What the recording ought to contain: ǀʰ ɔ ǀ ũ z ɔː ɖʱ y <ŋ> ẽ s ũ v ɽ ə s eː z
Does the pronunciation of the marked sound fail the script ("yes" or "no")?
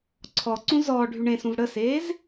yes